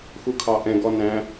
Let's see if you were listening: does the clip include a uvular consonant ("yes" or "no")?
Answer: no